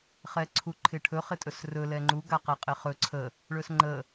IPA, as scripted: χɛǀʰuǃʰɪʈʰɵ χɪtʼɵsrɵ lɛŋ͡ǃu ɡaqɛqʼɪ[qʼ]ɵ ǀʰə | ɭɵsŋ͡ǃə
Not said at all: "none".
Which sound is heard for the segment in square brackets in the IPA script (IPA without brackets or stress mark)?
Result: χ